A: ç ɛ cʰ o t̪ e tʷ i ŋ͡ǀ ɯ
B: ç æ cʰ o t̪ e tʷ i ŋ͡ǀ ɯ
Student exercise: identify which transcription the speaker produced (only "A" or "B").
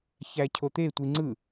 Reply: B